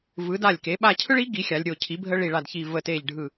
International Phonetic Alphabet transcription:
vɯ˩˧da˧˩lʲke˩˧ ɓa˧˩cʰɯ˦ɭi˩˥ ɡi˩˥xʲa˩˧lʲɾʲo˧˩ cʰi˩˥bʱə˦ ɭi˧˩ɭa˧˩dçi˧˩ və˧˩te˧˩ʎɖʱɯ˧˩

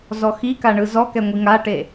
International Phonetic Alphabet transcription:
zɔxi kaɳɯzɔ kɛŋʷiŋaʈe

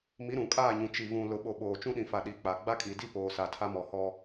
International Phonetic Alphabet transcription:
mi˨˦ɾũ˨kʼaː˦˨ɲũ˨ t͡ʃi˨vũ˨ lʊ˨ɓo˨ ɓoː˨ t͡ʃũ˦ɗĩ˨fa˨ ɗi˨˦k͡pa˨ ɡ͡ba˦kʼi˨di˦ poː˨sa˨tʰa˦ mɔ˨hɔ˦

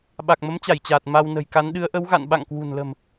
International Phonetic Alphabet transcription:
ɓa˨˩k̚mə˨˦mt͡ɕa˧˩jt͡ɕaː˨˩t̚ ma˧w nə̤˨˩jka˨˦n ɗɨ˨˦ə̯ʔə˨˦wɣa̰˧˨n ɓa̰˧˨ŋkwṳ˨˩nlə̤˨˩m

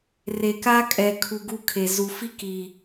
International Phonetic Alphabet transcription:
re˨ka˦kʼɛ˨ kʰu˨ ɡu˦ kʰe˨ zu˨fi˦ki˨

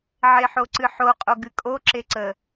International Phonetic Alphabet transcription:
ʕeħoǀɨħo qʼoɡɨkʼo ǁeǀə

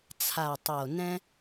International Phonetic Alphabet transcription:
t͡sʰa˨˩tˤo˨˩nɛ̃˦

